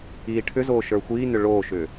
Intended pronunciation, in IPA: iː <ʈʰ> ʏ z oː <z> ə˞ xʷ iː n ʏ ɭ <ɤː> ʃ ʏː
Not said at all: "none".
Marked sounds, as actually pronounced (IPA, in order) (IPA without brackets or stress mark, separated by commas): ʈʰ, ʃ, oː